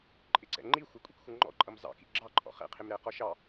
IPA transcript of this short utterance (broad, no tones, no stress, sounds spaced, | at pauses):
ǃʼ ɪ ǀ ɛ̰ ŋ͡ǃ i xʷ ʌ kʷʼ ḭ k xʷ ʌ ŋ͡ǃ ɔ̰ ǃʼ ʌ m z ɑ̰ k ḭ ɡ͡ǁ ɑ ǃʼ ɔ̰ χ ɛ̰ qʰ ɪ m ɾ ɛ q ɔ ʃ ɑ